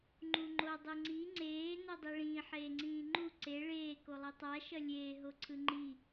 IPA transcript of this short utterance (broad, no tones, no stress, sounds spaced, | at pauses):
ŋ͡ǃ u ŋ͡ǃ o dˤ ɯ ŋ͡ǀ i ŋ͡ǀ eː n o dˤ i ɭ ĩː ħ eː ŋ͡ǀ ĩː ŋ͡ǃ u ǀ e ɭ eː k o lˠ i tˤ a ʃ ʌ lʲ eː ɦ o ǀʰ ɯ ŋ͡ǃ i